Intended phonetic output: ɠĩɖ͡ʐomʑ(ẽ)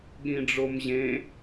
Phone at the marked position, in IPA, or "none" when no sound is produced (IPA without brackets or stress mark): ẽ